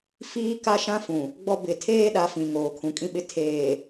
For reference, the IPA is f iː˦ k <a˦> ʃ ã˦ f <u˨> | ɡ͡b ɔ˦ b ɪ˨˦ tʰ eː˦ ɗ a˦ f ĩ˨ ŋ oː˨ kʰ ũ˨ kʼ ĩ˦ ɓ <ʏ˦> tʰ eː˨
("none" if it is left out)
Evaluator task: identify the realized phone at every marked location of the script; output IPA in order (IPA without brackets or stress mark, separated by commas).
a˦, ũ˨, ɪ˦